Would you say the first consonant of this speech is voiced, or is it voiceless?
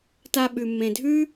voiceless